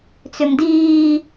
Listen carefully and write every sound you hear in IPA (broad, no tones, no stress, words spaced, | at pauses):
t͡sʏmdiː